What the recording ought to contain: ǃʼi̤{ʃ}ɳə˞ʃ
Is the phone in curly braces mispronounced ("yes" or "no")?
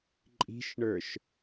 no